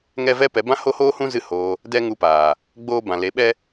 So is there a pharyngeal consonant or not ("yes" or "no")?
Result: no